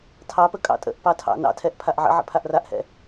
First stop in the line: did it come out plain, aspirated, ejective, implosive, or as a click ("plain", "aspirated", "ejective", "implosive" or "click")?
aspirated